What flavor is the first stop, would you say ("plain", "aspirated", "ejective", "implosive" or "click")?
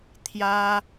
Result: aspirated